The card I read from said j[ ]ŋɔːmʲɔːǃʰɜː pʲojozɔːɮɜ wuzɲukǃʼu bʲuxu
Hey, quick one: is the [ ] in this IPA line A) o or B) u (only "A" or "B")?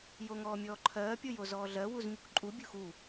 A